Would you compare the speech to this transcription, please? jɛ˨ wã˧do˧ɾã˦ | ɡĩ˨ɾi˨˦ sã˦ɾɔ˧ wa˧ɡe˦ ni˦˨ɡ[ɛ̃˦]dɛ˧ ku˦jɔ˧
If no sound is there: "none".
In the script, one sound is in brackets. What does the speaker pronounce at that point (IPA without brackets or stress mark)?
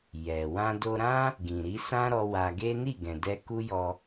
ɛ̃˨